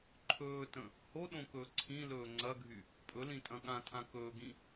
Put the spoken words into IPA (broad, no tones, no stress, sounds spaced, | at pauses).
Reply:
ǃʰ ɵː t ə̃ | h o ɗ õ k ɵː ǀʰ ĩ l ɵː ŋ͡ǀ ɐ ɡʱ y | pʼ ɵ l ĩ tʼ ɐ̃ ɠ ã tʰ ã k ɵː ɡ ĩ